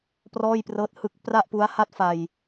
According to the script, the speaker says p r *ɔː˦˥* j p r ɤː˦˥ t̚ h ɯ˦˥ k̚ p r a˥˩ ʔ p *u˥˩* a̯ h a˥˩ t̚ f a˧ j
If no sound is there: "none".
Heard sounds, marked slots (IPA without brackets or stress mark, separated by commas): ɔː˥˩, u˦˥